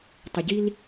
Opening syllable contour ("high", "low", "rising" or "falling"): low